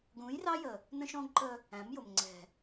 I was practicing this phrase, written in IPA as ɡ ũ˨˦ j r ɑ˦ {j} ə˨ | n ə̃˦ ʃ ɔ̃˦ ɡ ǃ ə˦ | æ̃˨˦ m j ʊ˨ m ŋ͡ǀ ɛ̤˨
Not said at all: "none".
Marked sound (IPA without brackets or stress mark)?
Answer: j